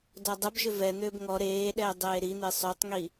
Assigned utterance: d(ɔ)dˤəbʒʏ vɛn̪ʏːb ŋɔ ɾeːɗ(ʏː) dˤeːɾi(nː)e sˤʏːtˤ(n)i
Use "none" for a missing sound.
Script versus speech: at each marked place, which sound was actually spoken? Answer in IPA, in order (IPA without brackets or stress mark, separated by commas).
ɔ, ɛː, n̪, ŋ